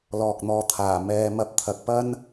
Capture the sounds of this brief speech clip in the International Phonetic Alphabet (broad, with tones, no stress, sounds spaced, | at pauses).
l ɔː˨ k̚ n̪ ɔː˨ t̪ʰ aː˨˩ m ɛː˨˧ m ɐ˧ p̚ t̪ʰ ɐ˨ k̚ p ɐ˥ n